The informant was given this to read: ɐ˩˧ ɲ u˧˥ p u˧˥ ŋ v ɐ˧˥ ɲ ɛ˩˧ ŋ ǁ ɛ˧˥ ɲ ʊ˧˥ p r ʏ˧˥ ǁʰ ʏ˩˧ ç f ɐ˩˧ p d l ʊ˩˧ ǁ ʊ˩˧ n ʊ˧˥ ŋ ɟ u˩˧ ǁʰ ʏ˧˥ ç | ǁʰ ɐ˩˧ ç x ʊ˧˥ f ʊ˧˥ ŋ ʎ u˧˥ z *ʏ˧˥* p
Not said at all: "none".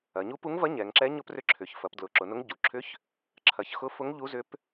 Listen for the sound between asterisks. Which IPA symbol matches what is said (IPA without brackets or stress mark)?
ʏ˧˥